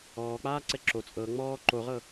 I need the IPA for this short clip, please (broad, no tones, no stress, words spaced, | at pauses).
ɔːk͡paːǀɛ ǁo t͡sʼɤ ŋ͡mɔː ǃoʁɤ